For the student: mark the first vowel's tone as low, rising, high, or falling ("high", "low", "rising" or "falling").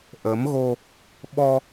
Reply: rising